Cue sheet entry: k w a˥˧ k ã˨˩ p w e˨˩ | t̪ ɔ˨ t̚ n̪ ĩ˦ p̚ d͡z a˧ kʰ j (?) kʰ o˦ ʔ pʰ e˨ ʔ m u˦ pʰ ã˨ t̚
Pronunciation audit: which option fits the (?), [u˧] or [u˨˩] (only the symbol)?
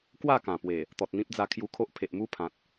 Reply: u˧